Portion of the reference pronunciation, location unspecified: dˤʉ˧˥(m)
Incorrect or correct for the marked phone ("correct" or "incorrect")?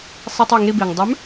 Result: correct